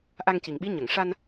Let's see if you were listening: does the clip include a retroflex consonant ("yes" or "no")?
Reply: yes